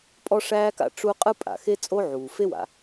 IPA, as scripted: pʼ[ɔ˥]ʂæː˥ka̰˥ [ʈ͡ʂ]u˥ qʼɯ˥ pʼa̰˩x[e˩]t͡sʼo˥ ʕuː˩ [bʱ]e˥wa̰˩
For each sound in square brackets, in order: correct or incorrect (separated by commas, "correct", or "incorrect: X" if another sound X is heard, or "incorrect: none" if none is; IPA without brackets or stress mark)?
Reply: correct, correct, incorrect: e˥, incorrect: f